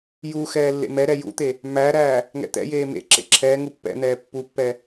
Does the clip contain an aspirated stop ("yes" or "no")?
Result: yes